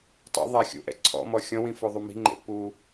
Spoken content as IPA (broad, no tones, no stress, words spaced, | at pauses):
tˤṵðˤa xʲṵʔɛ̰ ǀʰɔ̰mɔ xʲɔ̃wĩfoðˤu mi̤ŋ͡ǃḛ pu